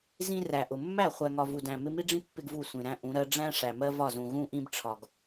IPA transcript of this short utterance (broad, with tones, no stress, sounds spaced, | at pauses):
z ĩ˦ r æ˨ ʔ ʊ˨ mː æ˦˨ χʷ æ˨ ŋ ɒ˨ v u˨ d æ̃˨ m ɪ˦ m i˦ ɖ͡ʐ ĩ˦ pː ɪ˦ ɡ v u˦˨ sʷ ĩ˨ ɾ æ̃˦ ʔ ũ˨˦ ɾ ɜ˦ ɖ͡ʐ æ̃˦ ʂ æ˨ m ɜ˦ v ɒ˦˨ z ũ˨ ɣ ũ˦ ʔ ĩ˦ b ʈ͡ʂʰ ɒ˨ ɡ